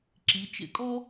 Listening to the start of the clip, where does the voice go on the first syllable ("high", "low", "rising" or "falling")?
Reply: rising